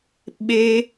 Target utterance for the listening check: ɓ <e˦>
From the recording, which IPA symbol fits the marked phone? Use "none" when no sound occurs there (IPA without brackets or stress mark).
e˦